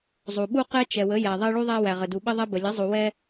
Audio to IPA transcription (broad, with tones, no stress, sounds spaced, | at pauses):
zˤ u˩ ɓ u˦ q ɛ˦ t͡ʃ ɛ˩ w ə˩˥ j æ˩ ðˤ ɛ˦ ɭ u˦ ðˤ æ˦ w æ˩ ʁ ə˩ d u˩ ɓ ə˦ ðˤ ɛ˦ b ə˩ lʲ ə˩˥ zˤ u˩ w ɛ˦